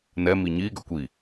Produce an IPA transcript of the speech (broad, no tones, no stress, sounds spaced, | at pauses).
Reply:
n ɛ m i ɲ i ɡ œ kʷ i